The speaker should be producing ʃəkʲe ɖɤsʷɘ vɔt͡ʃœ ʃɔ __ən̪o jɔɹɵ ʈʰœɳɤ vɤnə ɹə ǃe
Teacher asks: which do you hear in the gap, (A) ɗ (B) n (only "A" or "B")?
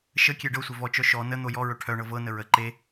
B